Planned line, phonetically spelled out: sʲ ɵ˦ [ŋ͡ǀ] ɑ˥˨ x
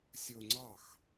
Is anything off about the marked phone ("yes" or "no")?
no